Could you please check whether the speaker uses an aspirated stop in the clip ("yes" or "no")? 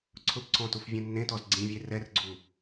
yes